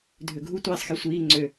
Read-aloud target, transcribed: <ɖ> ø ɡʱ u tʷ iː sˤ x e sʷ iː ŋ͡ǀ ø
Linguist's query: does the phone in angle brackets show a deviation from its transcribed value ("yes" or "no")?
yes